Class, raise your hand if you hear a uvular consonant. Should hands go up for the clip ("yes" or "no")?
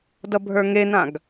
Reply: no